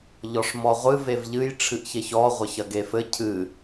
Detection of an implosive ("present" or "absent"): absent